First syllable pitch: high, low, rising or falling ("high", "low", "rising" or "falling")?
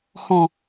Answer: low